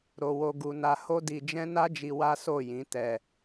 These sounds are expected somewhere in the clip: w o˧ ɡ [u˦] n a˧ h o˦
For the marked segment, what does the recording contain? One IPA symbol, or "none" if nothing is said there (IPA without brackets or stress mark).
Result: u˧